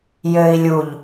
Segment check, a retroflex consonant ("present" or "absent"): absent